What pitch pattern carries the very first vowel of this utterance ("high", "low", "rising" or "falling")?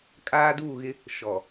high